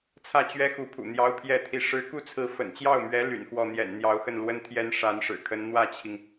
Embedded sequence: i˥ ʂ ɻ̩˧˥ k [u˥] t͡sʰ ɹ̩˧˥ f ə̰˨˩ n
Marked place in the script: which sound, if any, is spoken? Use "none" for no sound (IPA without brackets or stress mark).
u˥˩